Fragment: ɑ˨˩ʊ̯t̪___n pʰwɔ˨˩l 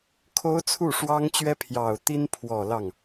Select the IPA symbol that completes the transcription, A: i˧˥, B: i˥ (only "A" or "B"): B